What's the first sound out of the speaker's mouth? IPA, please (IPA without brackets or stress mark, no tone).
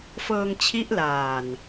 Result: f